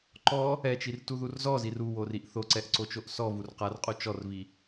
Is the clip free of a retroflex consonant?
yes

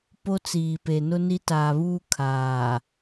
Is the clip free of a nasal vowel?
yes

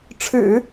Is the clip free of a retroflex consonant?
no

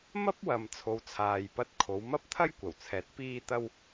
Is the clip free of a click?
yes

